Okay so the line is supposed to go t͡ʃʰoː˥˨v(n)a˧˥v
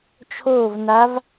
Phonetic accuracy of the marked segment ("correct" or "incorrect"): correct